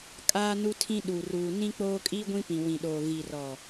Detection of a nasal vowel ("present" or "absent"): present